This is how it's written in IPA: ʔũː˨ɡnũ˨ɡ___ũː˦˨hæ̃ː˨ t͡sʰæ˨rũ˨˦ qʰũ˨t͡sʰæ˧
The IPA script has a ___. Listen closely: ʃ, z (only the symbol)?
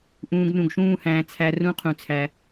ʃ